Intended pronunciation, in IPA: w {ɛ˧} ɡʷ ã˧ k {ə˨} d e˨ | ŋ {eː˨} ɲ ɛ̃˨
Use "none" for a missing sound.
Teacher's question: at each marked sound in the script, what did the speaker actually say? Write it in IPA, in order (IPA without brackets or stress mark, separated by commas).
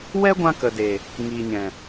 ɛ˦, ə˨, iː˨